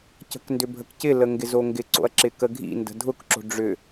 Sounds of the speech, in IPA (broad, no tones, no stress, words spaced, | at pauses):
cə̤kndʏbʱəkcɪ ləŋɡɪzoŋɡɪ ǀo̰ɐ̯ǁɪkəɡʱḭ ndə̤dʱʊk ǁo̤ɖ͡ʐʏ